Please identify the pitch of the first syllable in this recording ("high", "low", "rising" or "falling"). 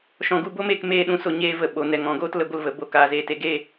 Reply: low